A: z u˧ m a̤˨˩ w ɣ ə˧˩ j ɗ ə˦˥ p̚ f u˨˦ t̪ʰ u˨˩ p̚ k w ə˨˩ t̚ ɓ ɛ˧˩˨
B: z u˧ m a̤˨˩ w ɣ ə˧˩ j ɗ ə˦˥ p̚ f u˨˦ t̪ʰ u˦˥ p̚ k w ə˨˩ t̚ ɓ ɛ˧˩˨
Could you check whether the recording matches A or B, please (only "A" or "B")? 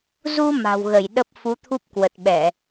B